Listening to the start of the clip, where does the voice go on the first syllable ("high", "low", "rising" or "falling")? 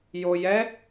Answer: low